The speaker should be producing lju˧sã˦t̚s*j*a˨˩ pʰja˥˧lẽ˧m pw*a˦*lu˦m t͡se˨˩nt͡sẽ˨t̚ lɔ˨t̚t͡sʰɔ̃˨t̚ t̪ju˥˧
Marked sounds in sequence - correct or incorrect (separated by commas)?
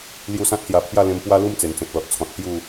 correct, correct